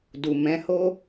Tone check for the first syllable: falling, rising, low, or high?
low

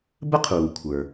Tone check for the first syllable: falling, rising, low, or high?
high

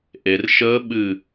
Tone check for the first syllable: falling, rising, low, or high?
low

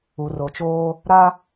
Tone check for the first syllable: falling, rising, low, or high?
low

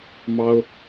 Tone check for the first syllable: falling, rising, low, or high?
high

